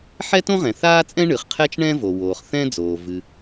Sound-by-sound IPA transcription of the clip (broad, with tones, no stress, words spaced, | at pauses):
ħɛ˥tõ˥ʁɛ̃˩ θaː˥t͡sʼɛ̃˥ ɳɨ˩χqʰɛ˥t͡ʃɳɛ̃˥ vo˩woː˩χ θɛ̃˥ d͡zoː˩ vɨ˩